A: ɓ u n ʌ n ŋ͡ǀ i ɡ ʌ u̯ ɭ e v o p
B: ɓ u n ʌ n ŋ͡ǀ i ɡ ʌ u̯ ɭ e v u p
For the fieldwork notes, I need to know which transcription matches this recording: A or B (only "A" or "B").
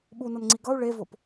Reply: A